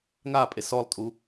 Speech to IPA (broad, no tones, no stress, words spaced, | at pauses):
ŋapʼe sɔlˠtʼu